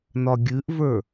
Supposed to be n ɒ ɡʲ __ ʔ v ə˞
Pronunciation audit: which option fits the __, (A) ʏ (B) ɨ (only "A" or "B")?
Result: B